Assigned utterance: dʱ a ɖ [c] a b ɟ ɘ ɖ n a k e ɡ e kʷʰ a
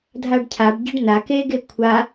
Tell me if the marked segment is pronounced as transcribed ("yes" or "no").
no